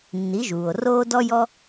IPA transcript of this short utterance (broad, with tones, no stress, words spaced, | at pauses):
nːi˩˥ʒuː˩o̯roː˥ dɔ˥jɔ˥